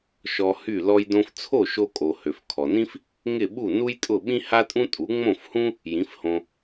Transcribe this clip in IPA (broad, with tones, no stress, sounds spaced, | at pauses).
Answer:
ʃ ɔ˧ h y˥˩ l ɔ˧ j d õ˧ f t͡sʰ o˥˩ ʃ o˧ kʼ o˩ h ø˩ f kʰ ɔ˩ n ĩ˥ f | ŋ ɪ˥˩ ɓ u˥˩ n u˥ j tʼ ʊ˥˩ ɓ ĩ˥ h a˥ tʼ ũ˥ tʼ u˩˥ ŋ͡m õ˥˩ f h ũ˥ | j ĩ˩˥ f h õ˧